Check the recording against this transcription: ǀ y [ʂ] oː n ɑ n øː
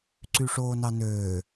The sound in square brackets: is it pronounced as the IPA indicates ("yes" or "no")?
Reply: yes